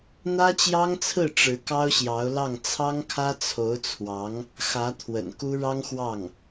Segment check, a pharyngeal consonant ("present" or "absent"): absent